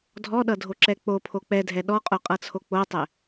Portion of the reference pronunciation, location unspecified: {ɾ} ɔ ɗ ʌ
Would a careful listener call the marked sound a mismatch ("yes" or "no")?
yes